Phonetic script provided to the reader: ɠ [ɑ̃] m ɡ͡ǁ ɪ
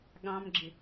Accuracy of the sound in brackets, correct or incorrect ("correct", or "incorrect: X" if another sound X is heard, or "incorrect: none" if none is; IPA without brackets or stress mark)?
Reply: correct